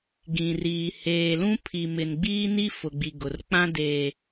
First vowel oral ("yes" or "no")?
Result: no